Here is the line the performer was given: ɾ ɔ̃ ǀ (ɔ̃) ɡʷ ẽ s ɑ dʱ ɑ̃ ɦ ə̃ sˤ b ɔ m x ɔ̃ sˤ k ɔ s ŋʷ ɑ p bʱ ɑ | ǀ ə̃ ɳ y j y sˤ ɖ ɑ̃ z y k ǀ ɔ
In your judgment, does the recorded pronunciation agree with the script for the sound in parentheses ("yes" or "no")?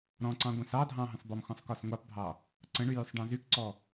no